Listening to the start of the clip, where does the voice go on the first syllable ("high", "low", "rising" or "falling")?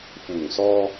low